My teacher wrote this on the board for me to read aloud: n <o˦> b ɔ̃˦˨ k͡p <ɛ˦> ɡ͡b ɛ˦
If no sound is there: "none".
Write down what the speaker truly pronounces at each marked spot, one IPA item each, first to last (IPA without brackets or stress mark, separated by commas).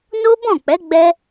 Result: o˦, ɛ˨˦